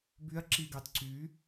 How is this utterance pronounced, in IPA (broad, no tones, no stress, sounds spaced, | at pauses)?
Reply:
b y ɐ̯ ǁ i ɡ ɑ t ǀ y